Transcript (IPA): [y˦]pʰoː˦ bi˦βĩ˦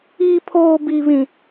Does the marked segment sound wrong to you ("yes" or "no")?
yes